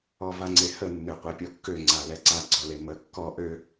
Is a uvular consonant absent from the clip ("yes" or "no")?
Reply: no